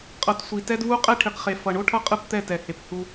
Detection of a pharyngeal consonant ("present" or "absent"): absent